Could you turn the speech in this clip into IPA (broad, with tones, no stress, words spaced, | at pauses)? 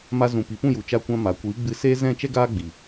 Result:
ma˧zũ˨ pi˨pũ˦˨ju˨ t͡ʃa˧kʷã˧ ma˨kʷiː˨˦ɡ͡bɨ˧ seː˧ zɛ̃˦˨t͡ʃɛ˦ɡaː˦ ɡ͡bi˨